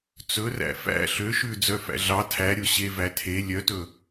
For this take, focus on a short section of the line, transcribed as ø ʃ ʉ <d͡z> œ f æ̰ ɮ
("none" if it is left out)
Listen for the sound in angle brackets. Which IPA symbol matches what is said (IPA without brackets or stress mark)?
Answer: d͡z